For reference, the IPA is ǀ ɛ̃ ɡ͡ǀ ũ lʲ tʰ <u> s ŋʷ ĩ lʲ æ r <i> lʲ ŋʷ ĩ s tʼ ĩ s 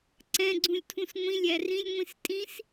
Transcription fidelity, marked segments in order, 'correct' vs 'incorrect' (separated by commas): incorrect, incorrect